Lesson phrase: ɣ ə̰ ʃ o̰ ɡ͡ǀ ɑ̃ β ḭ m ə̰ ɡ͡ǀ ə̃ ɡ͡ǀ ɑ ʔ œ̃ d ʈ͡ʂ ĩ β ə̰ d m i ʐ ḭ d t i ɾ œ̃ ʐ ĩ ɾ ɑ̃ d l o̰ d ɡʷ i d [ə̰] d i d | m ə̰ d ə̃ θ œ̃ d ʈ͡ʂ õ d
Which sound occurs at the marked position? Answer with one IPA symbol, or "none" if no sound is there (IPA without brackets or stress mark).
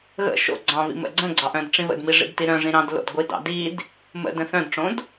ɑ̰